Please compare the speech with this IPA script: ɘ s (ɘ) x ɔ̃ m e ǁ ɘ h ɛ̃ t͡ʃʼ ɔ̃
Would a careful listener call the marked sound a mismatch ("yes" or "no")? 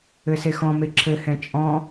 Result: yes